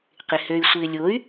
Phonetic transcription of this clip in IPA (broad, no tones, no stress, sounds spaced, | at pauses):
q ɪ h ø y̯ sʷ ɪː lʲ o y̯